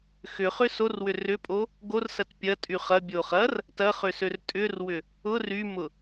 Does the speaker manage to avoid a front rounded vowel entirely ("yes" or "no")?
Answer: no